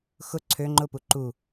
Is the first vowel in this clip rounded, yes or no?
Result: yes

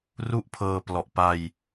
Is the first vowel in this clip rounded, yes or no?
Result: yes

